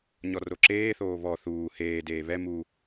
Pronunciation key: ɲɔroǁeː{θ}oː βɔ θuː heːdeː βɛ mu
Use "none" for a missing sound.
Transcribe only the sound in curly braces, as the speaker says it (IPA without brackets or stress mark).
θ